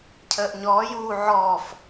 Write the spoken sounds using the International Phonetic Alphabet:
cʰ əː ʔ ɲ ɔː j uː ʕ ɔ f

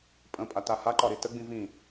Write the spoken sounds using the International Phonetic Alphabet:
pʼ ə̃ pʼ a t a h a ǃ ɒ ɾ i t ə ɡ͡b ĩ v ĩ

